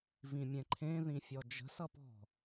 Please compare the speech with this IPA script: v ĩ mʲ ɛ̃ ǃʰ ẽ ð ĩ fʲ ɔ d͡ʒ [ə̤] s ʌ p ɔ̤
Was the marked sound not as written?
no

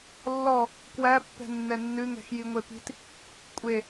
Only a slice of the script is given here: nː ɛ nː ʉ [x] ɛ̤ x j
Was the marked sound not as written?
yes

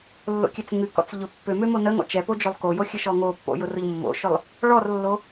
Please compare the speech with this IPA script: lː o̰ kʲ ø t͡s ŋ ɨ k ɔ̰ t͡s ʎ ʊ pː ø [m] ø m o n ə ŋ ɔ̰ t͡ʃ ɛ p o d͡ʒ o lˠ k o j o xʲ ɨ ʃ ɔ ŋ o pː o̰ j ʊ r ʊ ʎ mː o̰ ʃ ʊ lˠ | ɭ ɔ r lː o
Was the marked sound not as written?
no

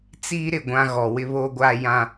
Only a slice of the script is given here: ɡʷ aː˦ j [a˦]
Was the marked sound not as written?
yes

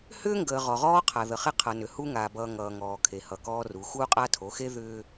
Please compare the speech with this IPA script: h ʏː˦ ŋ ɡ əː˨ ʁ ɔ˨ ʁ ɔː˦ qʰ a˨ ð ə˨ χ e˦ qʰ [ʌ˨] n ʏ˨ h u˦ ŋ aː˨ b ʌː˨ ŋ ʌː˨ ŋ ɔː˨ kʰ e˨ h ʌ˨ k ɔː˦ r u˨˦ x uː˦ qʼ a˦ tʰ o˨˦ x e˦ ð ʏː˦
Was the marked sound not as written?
no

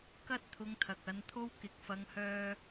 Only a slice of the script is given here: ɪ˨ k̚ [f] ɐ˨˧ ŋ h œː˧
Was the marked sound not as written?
no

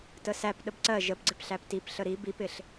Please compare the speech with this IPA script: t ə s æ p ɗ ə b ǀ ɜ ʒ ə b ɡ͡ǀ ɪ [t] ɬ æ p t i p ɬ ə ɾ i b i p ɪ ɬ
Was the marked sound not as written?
yes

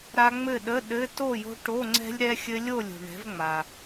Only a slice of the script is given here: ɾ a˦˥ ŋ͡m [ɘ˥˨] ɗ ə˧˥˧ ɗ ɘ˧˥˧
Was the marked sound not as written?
no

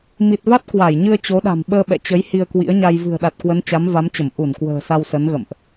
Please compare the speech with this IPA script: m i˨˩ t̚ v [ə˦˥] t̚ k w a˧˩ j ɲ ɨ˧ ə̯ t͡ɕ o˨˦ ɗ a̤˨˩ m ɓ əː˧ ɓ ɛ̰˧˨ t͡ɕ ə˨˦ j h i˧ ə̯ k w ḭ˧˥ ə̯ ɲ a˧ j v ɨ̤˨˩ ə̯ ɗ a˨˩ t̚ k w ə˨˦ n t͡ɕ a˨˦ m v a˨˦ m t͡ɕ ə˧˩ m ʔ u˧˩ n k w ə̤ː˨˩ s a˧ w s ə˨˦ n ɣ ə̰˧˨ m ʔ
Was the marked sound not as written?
yes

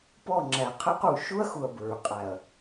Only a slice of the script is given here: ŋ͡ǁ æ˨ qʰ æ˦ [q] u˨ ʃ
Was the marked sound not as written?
no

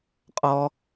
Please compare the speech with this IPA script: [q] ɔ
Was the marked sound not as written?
yes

